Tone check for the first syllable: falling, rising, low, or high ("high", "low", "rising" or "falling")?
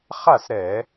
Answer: falling